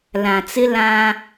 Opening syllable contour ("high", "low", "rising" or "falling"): low